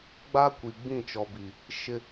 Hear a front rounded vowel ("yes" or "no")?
no